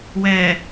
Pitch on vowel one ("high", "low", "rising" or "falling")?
low